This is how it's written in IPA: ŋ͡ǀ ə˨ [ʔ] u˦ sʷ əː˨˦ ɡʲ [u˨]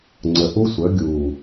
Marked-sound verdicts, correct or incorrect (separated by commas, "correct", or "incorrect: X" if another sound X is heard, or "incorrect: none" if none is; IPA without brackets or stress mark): correct, incorrect: uː˨